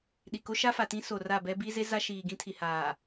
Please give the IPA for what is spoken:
ɗi˨ko˦ ʃa˦fa˨tĩ˦ so˨ra˦˨bɛ˦ bi˦ze˦ za˦ʃiː˨ɡĩ˦ tʰi˨haː˨

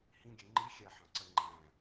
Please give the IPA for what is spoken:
hĩɡʲɛ ŋ͡ǃi xʲæħɑ̃ǀɜ ŋ͡ǃæ̃

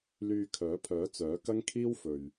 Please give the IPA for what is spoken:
lyː˧kʰœː˨˥pʰœː˨˥ t͡sœː˨˥kɐ˥ŋkʰiː˥w fɵ˨ɥ

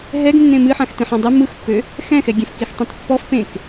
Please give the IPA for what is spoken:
ɦɛɡ nːẽmɨħãx tẽħãdˤe mɯxpːø | xɛ̃xɛɡʲẽf kixtˤãtpːɔf pẽk

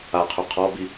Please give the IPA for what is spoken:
aqʰo qʰɔbi

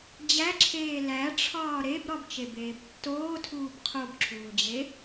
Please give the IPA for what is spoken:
d͡ʑæǁʰeː læʈ͡ʂʰɒː ɾebɾɒbt͡ʃebeːb tːoːtʰuːb qʰobǁʰuːd͡ʑe

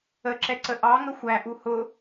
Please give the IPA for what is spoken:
əǁɛ ǀəʔɑŋə xʷæʔu hʊ

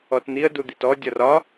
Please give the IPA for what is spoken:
ɔtn̪iə̯ dud̪itɔ dʲɒrɒ

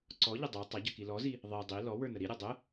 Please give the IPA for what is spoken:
ǀɔʎə dˤə˞ tˤʌɟʌk ilɔzi | ðˤi dˤi lɔ wə˞nəɾiɾʲʌ dˤə

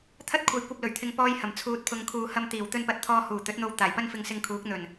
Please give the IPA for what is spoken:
t̪ʰɐ˥t̚kʷʰɐ˨˧jkʷɐ˧p̚ lɵ˨˩ɥt̪ʰɪ˧ŋpɔː˥jhɐ˨˩m t͡sʰuː˨t̚pʰʊ˨ŋkʰuː˨hɐ˧m t̪iː˨˩w t̪ɵ˧npɐ˨t̚t̪ʰɔː˧ huː˨˩ t̪ɵ˨˥t̚n̪o˧w t̪aː˨˩jpɐ˥n fɪ˧ŋsɪ˧ŋkʰuː˨˥k̚ n̪ɵ˨˩n

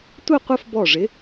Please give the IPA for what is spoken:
tʷə˥˧qʷə˥˧fbɔ˧˩ʐɪ˨˥

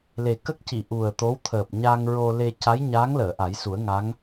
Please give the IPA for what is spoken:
le˨˩kə˦˥k̚ci˨˩˨ ʔu˨˩ə̯t̪o˧˥wt̪ʰəː˨˩p̚ ɲa˧ŋɹo˧ le˧ ca˧˥jɲa˧˥ŋ ləː˨˩˨ʔa˨˩˦jsu˨˩˦ə̯ ŋa˧˥ŋ

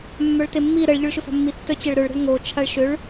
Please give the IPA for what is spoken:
mːœɭtemːi ɾəɭ ʎʊɭʃʏfa̤mːi tːœt͡ɕɛɭɾøɭ ɾə̤ɭŋo t͡ʃʰaɭʃʏɭ

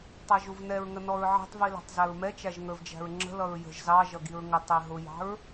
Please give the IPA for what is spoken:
tˤæʒuvnɛɹŋə nɔɹʕi̤tˤvi læ̤tˤzæɹmɛt͡ʃæʒ ŋə˞vd͡ʒæ̤ɹŋ͡ǁə̤lʌɹ jə̤ʒ zɑʒʌ ɡiɹŋətˤi ɦʊjɑ̤ɹ

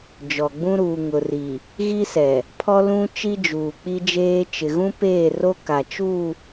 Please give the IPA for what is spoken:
d͡ʒɔ˨ɡ͡bũ˦ ɾuː˨ŋʊ˨ ri˨ | ɣi˦sɛ˨ | pʰɔ˦lũ˦ t͡ʃi˦d͡ʒuː˨k͡pi˦d͡ʒeː˦ t͡ʃɪ˨ɣũ˦ peː˦˨ro˦ ka˨t͡ʃu˦˨

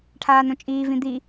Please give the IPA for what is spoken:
ʈʰaːnõt͡ʃʼiː vĩd̪i

